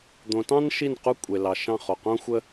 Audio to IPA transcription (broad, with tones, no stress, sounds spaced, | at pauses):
d̪ õ˩˧ t ɑ̃˥ n ʃ i˥˩ n q u˥ kʷʼ e˩ l ɑ˩ ʃ ɑ̃˥˩ χ o˩ q õ˥ xʷ ə˥